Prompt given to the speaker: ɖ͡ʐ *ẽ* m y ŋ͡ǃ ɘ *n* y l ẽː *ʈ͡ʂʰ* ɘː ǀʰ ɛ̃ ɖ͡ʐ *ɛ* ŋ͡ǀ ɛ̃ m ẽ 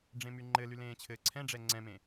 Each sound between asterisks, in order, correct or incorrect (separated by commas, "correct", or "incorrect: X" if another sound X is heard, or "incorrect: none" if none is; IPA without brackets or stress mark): correct, incorrect: l, incorrect: t͡ɕʰ, correct